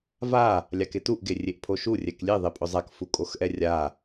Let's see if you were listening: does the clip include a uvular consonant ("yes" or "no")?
no